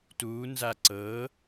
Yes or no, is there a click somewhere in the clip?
yes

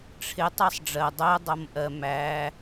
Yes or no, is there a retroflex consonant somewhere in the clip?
yes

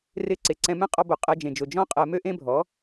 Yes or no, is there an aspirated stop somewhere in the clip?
no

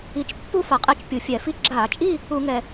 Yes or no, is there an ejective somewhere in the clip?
yes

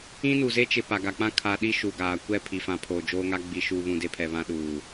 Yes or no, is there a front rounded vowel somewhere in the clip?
no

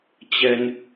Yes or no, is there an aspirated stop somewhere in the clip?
no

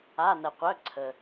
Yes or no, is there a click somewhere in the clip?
yes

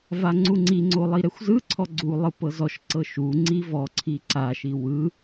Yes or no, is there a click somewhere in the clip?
yes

